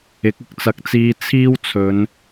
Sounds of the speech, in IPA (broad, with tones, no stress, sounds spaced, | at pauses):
ɪ˨˥ k̚ ɪ˨˥ k̚ t͡s ɐ˨˥ k̚ t͡s iː˧ t͡sʰ iː˥ w t͡sʰ ɵ˨˧ n